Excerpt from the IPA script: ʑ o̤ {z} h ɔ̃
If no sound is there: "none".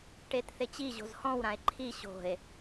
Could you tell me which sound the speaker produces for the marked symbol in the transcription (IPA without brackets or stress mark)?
z